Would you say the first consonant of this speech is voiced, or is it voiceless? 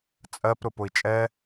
voiceless